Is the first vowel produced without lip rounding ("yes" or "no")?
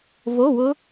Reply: no